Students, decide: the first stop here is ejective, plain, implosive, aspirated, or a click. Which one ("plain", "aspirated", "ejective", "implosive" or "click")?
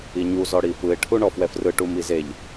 aspirated